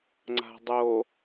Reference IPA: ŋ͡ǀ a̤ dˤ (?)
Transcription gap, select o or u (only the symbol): o